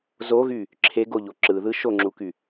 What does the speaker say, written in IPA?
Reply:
z o ɣ y | ǁʰ e ɡ o ʎ o ǁ ɯ ð ɯ ʃ o ŋ͡ǁ u k y

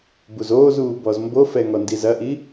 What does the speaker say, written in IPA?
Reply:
b u z oː z uː b ɔ z m b o f ɛ ŋ ɔ n d i z ɐ ʔ i

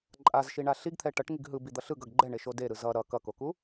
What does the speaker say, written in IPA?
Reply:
ǃʼ a z ʃ i ɳ a ɬ i ɡ t̪ʰ ɛ ʈ ʌ ʈ ŋ i ɡ ɦ ɯ b i d̪ ʌ ɬ ɯ ɡ ʌ ɡ ɡ͡ǃ ɛ ɳ e ʃ o d e ɾ ɯ z ʌ ɾ ʌ k ʌ k o k u

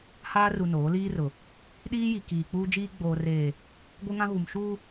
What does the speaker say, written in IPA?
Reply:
h aː˦ r u˨ n oː˨˦ l iː˦ r ʊ˨ | ɗ iː˦ j i˨ k iː˨ k͡p uː˦ d͡ʒ iː˦ ɡ͡b oː˨ r eː˨ | ɡʷ ɪ˦ ŋ ã˦ ɣ u˨ m ʃ uː˦

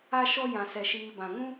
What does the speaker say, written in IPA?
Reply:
a˦ ʃ ɔ˦ j ã˨ s ɛ˨ ʃ iː˨ b ã˨ ŋ ũ˦

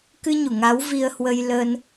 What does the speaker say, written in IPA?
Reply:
k ɨ˧ ɲ u˧˩ ŋ a˨˦ w v i˧ ə̯ h w ə˧ j l ə˧ n

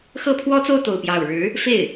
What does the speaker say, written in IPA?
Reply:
x ɤ˥˩ pʰ w ɔ˥ t͡s o˥˧ ʊ̯ t̪ o˥˧ ʊ̯ p j ɑ˥˩ ʊ̯ ɻ ɻ̩˧˥ | f e˥˩ ɪ̯

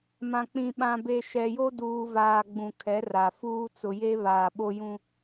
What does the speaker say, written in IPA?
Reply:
m ã˨ k͡p ĩ˨ ɓ ã˨ b e˨ ʃ ɛ˨ j o˦ d uː˨ v aː˨ ɡ͡b ũ˨ kʰ ɛ˨˦ r a˨ f uː˦ t͡s ʊ˨ j e˦ β aː˨ ɓ o˦ j ũ˦

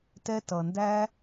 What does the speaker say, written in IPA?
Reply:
t ɛ˦ t ʌ˨ n d æ˥

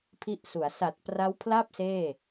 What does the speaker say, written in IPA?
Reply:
pʰ i˥˩ ʔ s u˩˦ a̯ s a˨˩ t̚ p r a˦˥ w pʰ l a˥˩ p̚ s eː˥˩

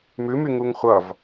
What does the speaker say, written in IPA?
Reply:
m ʉ m y ŋ u ŋ χʷ ʌ v

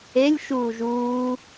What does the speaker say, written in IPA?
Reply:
e lʲ ʃ uː ʒ uː

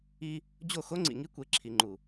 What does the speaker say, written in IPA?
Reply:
i˦ | d͡ʑ o˦˨ x o˦ ŋ͡ǀ ḭ˨ ŋ i˦ kʷ e˨ ǁʰ i˨ ŋ͡ǃ u˨

